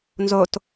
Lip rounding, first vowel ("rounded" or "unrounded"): rounded